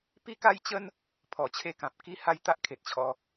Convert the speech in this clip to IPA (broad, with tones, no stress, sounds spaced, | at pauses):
p i˥˧ k a˦ j t͡ɕ ə˦ n | pʰ ɔ˨˩ t͡ɕʰ e˥˧ k ã˨ p̚ k i˦ h a˦ j t̪ a˦ ʔ kʰ e˨ t̚ t͡ɕʰ ɔ˧